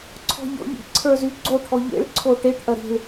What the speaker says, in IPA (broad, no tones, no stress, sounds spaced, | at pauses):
ǀʰ ɔ̤ ʎ ɔ̰ ʎ ḭ ǀʰ ə˞ z y ɡ͡ǀ o ʈʰ ɔ ʎ ḛ ɭ ǀʰ o ʈ e ʈ ʔ ɐ ɾ i̤ ɭ